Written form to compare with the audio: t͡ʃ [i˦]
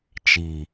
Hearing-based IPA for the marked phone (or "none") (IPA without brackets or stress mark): i˨